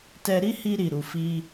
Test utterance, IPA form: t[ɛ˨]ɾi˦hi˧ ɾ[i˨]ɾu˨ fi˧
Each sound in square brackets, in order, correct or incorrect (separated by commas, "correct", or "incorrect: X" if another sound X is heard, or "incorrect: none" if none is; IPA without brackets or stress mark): incorrect: ɛ˧, correct